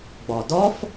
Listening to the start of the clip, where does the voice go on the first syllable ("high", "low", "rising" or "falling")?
low